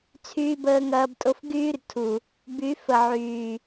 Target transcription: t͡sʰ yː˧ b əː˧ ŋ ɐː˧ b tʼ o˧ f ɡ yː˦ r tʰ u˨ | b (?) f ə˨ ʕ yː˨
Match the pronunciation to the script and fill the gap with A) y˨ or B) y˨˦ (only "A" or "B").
B